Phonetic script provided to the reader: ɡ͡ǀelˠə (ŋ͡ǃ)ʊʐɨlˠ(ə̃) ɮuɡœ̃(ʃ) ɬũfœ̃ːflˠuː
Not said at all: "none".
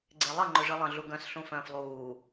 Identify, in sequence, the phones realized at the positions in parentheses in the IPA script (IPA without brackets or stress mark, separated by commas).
ŋ͡ǃ, ə̃, s